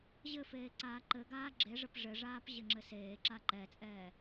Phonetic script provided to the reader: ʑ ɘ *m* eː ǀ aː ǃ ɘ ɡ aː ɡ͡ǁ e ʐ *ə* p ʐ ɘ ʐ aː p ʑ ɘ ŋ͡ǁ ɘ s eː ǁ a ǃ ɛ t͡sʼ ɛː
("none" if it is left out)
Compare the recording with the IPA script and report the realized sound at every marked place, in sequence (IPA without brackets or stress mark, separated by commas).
f, ə